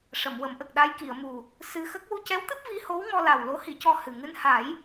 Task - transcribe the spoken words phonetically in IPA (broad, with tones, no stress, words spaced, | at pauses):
ʂə˨˩˨mwə˨˩˦mʔə˨˩k̚ ɗa˧jki˨˩˨ə̯mu˨˩ | sɨ˧xə˦˥k̚ wu˧cɛ˧˥wt̪ɨ˦˥p̚ vi˧˥ho˧˥wŋɔ˧la˨˩w lo˧˥hi˨˩˦cɔ˧ hɨ˨˩ ŋɨ˧nha˨˩˦j